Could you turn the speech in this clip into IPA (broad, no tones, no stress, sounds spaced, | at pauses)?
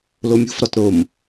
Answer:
l o mʲ ṳ f ɾ ɒ t ɾ o m